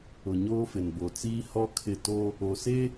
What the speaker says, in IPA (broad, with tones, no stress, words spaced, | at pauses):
ʊ˨ɲoː˦fɪ˨n bo˨t͡siː˦ hɔ˦kʰɪ˦˨ to˦ | o˨se˦